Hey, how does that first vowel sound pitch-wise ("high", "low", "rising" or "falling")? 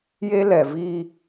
high